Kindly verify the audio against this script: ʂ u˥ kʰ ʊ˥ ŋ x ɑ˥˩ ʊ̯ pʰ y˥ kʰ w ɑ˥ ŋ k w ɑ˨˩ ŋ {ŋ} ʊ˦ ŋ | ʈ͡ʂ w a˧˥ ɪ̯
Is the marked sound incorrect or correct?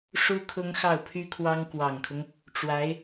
incorrect